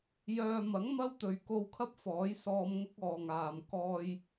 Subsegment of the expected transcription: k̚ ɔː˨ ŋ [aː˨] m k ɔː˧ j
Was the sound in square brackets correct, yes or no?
yes